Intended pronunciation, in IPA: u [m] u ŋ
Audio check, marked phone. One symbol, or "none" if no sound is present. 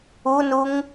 n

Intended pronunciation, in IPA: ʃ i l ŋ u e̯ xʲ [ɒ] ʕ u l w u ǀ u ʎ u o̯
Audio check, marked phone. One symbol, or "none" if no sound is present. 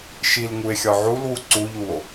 ɒ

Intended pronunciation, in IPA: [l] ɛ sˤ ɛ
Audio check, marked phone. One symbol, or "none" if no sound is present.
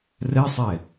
r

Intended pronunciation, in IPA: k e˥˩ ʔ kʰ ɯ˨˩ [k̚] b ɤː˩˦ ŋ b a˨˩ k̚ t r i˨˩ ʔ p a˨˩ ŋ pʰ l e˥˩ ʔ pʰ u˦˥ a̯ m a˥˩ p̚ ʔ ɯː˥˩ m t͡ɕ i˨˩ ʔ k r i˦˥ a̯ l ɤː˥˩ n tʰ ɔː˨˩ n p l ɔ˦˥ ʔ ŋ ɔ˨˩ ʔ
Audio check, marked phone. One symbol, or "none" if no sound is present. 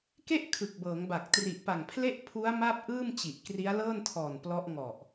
k̚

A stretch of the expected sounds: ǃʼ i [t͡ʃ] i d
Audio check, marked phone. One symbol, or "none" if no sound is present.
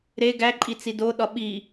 t͡s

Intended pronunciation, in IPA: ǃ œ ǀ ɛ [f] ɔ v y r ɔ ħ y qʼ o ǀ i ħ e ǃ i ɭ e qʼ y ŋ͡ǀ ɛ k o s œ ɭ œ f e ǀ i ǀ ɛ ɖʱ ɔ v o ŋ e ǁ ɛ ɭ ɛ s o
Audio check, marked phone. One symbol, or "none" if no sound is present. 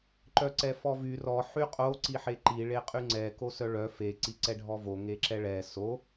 f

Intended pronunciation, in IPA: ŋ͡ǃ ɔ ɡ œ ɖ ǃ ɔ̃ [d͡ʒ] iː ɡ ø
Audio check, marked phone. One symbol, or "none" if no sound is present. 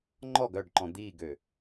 d̪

